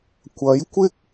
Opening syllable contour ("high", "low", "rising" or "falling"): rising